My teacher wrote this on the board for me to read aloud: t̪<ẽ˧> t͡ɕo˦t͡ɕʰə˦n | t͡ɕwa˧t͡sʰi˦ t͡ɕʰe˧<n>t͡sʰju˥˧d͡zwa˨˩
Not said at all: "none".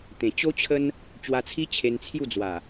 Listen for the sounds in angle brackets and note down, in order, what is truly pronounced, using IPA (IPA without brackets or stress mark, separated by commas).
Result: ẽ˨˩, n